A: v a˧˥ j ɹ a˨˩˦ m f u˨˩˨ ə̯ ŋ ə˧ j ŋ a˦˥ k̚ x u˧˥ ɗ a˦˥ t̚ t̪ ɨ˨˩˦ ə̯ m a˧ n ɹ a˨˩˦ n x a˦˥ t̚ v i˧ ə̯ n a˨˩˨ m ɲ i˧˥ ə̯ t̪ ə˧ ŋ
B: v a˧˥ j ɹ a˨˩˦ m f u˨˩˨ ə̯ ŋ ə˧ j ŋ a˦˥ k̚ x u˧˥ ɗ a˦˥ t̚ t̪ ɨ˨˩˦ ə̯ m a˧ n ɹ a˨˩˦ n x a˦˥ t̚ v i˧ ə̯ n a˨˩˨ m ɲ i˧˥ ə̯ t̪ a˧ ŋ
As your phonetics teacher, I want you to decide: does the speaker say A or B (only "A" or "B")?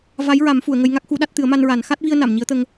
A